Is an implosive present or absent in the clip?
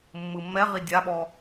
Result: present